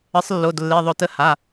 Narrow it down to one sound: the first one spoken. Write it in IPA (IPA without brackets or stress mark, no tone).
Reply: ə